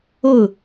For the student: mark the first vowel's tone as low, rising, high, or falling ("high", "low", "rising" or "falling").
falling